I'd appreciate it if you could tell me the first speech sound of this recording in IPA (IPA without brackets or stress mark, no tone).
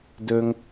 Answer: d